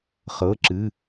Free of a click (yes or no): no